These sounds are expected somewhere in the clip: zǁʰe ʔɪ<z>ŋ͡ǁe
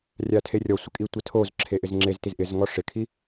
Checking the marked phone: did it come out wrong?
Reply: no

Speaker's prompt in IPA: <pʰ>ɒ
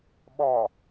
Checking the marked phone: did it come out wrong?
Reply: yes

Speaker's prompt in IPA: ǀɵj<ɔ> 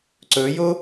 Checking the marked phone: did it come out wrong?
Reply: yes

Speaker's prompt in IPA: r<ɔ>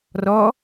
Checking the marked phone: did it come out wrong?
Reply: no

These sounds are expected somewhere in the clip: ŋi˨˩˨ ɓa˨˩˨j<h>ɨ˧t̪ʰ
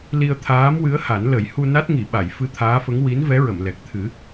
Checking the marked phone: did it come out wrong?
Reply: yes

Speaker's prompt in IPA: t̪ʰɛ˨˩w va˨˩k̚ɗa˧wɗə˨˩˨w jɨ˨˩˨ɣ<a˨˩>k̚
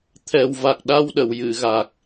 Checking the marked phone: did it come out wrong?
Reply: no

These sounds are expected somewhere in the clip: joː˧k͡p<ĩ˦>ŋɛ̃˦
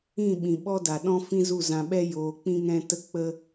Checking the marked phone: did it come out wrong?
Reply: no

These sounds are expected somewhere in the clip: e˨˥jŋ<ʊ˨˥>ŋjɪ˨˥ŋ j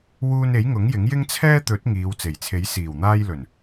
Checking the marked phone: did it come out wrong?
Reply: no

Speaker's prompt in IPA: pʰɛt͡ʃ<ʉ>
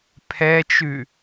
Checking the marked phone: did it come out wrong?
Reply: no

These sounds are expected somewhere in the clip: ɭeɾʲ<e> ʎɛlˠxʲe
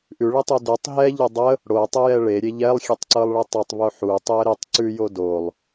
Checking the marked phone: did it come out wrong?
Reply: no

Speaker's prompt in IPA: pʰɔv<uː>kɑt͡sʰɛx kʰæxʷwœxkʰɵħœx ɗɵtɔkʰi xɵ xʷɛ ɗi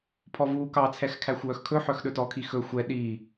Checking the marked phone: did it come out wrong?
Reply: no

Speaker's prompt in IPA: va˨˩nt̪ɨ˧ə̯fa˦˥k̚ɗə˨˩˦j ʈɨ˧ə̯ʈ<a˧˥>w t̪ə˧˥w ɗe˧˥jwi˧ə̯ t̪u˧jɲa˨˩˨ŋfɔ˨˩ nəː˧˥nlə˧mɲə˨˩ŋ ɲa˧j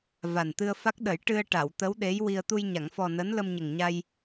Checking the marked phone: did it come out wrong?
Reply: yes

